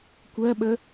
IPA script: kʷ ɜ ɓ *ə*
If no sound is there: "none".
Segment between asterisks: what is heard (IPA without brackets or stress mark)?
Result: ə